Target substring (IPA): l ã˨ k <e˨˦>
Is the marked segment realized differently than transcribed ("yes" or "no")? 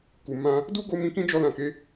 no